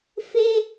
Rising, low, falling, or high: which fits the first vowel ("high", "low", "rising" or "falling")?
high